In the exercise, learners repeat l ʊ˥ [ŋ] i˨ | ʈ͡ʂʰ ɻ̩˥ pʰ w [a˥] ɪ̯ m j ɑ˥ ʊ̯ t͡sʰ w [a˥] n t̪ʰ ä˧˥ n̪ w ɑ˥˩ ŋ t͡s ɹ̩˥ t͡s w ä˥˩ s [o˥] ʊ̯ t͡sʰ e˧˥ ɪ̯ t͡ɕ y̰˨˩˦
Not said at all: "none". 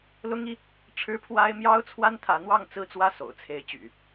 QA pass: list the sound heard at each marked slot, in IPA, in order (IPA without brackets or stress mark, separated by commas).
ŋ, a˥, a˥, o̰˨˩